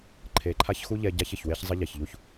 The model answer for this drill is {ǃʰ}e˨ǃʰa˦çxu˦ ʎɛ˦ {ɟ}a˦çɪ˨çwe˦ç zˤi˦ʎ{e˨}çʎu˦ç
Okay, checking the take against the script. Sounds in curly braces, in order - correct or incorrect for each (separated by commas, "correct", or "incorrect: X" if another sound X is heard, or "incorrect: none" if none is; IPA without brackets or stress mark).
correct, correct, incorrect: ɛ˨